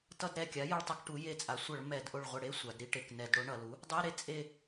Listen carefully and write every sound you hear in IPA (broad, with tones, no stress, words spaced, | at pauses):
tʌ˧dɾɛ˧˩kʲa˩˥ jʌ˧ɭtˤa˧k ʈu˩˥je˧t͡sʼa˩˥ sʷʌ˧˩˧ɭ mɛ˧˩˧d ʔo˧˩ɭʁʷɛ˧˩ɽe˧˥˧ sʷa˩˧dɾi˧ ʈe˩˧knɛ˧˩˧d ɽo˩˥ɳʌ˩˧lu˩˥ | dˤe˧˥˧ɾe˧ t͡sʼe˧˩